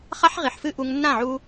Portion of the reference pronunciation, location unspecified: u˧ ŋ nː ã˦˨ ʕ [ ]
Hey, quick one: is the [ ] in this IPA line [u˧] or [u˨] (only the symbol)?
u˧